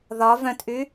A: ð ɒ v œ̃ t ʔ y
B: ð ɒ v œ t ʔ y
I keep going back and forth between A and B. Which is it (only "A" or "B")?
A